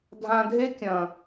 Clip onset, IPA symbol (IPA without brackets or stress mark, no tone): dʱ